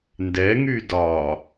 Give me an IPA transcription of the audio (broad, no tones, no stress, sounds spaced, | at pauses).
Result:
n d ɛ ŋ y d ɒ